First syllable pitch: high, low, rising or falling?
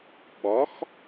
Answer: rising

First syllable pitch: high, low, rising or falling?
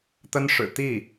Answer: high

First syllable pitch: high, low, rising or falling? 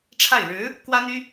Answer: falling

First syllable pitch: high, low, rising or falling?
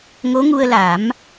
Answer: rising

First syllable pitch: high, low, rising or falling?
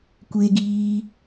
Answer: high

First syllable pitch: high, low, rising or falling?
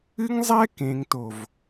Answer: high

